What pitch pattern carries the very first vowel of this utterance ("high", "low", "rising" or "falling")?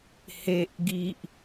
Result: high